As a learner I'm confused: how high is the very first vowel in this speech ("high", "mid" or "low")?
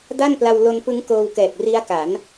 low